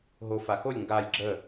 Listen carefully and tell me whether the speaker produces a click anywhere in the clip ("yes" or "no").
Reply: yes